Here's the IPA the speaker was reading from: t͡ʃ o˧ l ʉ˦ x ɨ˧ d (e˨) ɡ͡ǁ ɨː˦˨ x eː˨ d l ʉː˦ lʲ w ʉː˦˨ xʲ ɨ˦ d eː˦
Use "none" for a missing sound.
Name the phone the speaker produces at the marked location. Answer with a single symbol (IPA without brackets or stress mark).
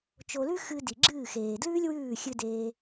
i˨